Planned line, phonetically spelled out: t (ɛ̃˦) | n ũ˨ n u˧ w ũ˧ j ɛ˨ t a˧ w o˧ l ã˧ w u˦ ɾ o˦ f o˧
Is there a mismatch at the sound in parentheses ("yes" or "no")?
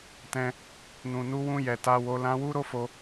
no